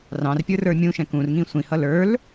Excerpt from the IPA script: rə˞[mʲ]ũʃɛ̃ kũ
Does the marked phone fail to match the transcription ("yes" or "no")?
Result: no